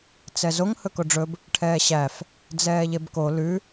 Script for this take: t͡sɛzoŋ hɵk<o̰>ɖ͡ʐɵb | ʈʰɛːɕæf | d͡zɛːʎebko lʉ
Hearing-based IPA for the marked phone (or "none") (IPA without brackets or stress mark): o